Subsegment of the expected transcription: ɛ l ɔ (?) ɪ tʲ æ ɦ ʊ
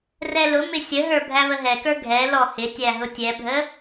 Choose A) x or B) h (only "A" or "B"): B